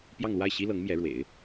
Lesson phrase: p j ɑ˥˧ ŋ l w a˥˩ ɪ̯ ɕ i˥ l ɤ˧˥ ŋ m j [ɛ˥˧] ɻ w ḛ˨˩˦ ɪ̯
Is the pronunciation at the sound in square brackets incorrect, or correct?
incorrect: ɛ˧˥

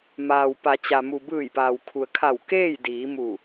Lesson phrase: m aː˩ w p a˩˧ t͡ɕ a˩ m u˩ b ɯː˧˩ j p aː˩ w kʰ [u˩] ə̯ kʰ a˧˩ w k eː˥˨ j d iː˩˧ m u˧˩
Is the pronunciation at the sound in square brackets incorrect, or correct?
correct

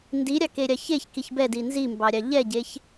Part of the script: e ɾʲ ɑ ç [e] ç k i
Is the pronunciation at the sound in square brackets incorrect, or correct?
correct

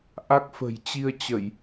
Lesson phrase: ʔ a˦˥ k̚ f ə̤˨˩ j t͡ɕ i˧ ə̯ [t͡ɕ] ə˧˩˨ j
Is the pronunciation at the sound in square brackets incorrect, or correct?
correct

